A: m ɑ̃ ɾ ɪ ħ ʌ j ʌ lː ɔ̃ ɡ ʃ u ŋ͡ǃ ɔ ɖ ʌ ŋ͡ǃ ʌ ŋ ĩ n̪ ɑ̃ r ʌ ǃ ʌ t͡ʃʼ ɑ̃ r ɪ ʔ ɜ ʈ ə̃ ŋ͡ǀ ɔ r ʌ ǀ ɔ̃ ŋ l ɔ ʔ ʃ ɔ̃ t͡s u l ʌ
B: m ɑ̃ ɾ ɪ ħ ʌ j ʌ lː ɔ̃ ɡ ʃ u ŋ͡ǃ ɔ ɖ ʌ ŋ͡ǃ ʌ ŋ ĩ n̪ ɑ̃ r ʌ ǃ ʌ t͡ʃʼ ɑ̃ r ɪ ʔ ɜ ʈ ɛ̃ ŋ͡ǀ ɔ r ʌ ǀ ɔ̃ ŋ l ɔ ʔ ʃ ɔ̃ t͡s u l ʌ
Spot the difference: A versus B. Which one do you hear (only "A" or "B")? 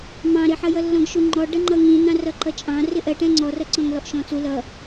B